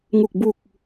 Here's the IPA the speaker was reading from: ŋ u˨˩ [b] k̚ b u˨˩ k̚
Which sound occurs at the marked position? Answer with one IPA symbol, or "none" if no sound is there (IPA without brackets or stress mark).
none